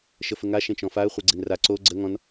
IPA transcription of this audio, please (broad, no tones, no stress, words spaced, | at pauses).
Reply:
ʃəfəŋa ʃẽt͡ʃɔ̃faə̯ χʷeɡ͡ǀenra ǀo ɡ͡ǀə ŋɔ̃n